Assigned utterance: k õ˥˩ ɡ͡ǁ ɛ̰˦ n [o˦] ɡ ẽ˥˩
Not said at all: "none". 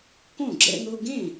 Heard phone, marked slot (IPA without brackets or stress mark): o˦